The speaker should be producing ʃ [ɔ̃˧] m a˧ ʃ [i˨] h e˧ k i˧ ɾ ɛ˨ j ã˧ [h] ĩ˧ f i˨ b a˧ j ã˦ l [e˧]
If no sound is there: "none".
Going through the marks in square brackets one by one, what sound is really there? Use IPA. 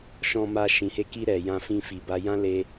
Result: ɔ̃˧, ĩ˨, f, e˧

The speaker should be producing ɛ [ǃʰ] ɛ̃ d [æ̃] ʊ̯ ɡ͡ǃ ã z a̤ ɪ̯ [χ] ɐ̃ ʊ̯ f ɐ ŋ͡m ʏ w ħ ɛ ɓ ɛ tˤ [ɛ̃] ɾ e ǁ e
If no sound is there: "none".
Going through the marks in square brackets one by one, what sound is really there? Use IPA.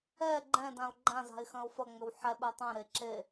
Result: ɡ͡ǃ, ã, x, ɛ̃

